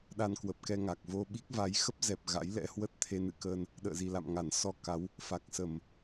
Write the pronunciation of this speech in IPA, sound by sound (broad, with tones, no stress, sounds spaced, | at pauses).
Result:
ɗ a˧ n k w ə˨˩ p̚ k ɛ˧ ŋ a˨˩ k̚ v o˧ ɓ i˦˥ k̚ v a˨˦ j x ə˦˥ p̚ z ɛ˨˩ p̚ ɣ a̰˧˥ j l ɛ̰˧˥ h w ə˦˥ t̚ t̪ʰ e˧ n ɨ̰˧˨ k əː˧ n | ɗ ə̰ː˧˨ z i˨˩ l a̰˧˨ m ŋ a˧˩ n s ɔ˧ k a˨˦ w | f a˨˩ k̚ s ə˧˩˨ m